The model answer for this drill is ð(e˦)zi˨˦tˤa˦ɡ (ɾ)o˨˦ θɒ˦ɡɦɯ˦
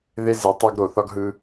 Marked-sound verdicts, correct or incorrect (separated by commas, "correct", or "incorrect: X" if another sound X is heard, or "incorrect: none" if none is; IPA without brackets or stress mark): correct, correct